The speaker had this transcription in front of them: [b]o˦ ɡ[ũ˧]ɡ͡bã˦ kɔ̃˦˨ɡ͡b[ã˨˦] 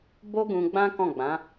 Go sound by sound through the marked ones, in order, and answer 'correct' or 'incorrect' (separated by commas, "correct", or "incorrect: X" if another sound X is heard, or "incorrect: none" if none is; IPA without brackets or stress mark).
correct, correct, correct